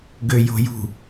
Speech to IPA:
ɡ ø j o̤ j ṳ

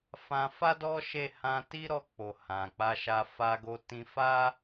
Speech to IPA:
f ã˧ f a˦ d ɔ˦ ʃ e˦˨ h ã˧ t i˦ ɾ ɔ˧ k͡p o˨ h ã˨ k͡p a˧ ʃ a˧ f a˧ ɡ o˧ t ĩ˧ f a˦

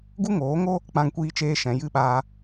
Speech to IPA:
ɡ u˦ ŋ oː˨˦ ŋ o˦ | k͡p ã˧ ŋ kʷ iː˧ t͡ʃ eː˧ ʃ ɛ̃˨ j ɨ˦ ɓ aː˧

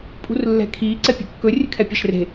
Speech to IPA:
pʼ ṳ r lː ɛ̤ kʰ iː ǀ ɛ pʲ ṳ kː ɵ rʲ ɨ kʰ ɛ pʲ a ʃ r e̤

